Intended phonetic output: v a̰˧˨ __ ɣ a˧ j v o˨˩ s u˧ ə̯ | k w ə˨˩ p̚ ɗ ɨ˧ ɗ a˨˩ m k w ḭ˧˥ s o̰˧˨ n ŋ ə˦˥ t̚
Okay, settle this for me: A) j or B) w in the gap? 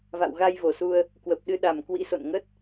B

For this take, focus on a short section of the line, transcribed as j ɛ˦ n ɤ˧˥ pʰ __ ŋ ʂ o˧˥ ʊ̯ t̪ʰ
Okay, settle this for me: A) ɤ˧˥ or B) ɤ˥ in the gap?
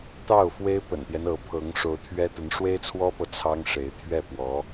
A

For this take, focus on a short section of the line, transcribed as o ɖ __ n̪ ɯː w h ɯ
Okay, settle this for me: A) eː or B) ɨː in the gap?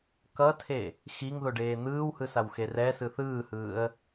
A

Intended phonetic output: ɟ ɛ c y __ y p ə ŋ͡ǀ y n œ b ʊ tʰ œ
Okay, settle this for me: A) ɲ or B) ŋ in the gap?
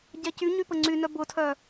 A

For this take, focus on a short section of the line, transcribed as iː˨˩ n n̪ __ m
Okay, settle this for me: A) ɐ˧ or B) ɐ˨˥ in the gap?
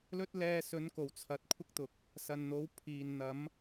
B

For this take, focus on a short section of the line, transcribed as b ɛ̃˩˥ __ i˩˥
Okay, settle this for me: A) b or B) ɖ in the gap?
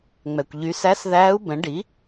B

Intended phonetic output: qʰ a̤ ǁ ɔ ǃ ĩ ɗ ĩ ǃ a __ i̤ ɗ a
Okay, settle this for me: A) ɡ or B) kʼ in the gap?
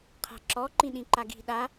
A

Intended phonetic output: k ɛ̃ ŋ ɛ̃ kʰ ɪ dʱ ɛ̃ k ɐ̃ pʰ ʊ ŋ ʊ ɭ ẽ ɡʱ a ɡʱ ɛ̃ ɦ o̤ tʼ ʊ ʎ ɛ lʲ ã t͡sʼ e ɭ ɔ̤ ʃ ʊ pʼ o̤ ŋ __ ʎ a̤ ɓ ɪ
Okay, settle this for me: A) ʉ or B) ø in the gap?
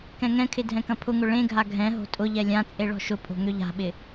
B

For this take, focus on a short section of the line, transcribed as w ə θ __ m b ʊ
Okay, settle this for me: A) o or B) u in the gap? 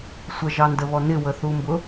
B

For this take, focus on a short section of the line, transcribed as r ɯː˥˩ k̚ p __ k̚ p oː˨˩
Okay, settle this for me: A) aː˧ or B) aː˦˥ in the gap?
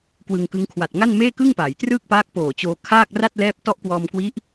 B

